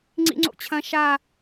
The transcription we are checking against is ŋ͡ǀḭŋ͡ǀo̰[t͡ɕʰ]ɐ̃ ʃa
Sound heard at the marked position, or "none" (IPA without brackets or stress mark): t͡ɕʰ